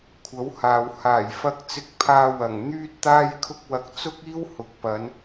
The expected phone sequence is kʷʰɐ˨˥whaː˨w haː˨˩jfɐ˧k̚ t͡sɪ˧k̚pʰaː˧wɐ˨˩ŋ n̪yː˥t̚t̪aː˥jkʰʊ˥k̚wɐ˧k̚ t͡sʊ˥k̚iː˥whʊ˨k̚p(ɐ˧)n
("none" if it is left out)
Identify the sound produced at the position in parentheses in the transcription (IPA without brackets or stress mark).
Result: ɐ˨˧